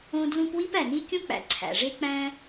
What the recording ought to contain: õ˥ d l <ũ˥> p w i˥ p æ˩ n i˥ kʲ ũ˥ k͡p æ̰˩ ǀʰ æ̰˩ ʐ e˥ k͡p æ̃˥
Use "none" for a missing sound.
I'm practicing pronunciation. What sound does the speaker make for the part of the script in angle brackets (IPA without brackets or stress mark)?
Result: ũ˥